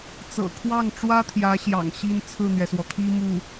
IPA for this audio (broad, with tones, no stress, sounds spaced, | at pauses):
t͡s ɤ̰˨˩ kʰ w ɑ˥˩ ŋ ʈ͡ʂ w ä˥ t̪ʰ j ä˧˥ ɕ j ɑ̰˨˩ ŋ ɕ i˥ n t͡sʰ ɹ̩˥˩ n̪ ɥ ɛ˩ s w ɔ˩ t̪ʰ i˥ m u˥˩